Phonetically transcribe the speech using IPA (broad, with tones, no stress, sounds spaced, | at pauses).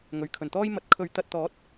ŋ ɵ˨˩ ɥ kʰ ɵ˨˩ n t̪ ɔː˥ j m ɐ˧ t̚ kʰ ɵ˨˧ ɥ t̪ ɐ˨ t̚ t̪ ɔː˨˥ t̚